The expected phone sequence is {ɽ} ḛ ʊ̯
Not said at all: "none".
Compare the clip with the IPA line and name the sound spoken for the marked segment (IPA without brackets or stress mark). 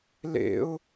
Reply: l